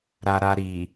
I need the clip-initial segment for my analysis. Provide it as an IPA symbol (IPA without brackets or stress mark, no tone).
ɾ